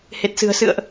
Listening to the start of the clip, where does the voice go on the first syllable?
low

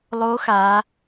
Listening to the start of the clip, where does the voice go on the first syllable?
rising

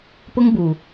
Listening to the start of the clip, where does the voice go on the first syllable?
high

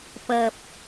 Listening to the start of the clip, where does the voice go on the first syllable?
low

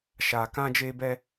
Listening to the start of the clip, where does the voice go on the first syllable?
low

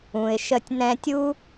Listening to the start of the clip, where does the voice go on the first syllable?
low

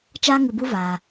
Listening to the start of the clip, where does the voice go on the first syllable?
high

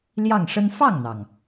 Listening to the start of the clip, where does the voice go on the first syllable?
falling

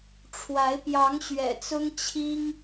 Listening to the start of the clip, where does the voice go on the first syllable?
rising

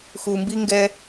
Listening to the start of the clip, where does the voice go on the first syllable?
low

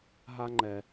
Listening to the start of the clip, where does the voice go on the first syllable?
high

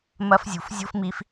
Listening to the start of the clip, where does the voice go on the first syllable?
high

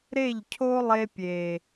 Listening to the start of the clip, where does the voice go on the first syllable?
falling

